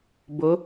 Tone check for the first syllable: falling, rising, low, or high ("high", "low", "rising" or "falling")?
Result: rising